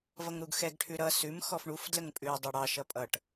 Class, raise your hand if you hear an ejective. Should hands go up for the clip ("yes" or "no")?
yes